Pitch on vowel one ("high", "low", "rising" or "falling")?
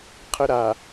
high